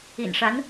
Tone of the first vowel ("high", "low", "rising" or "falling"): low